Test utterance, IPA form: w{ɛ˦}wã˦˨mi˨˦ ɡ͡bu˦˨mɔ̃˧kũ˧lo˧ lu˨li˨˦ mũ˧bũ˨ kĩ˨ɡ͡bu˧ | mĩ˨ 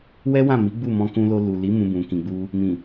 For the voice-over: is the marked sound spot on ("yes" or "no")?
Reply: yes